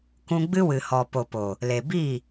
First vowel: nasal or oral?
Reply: nasal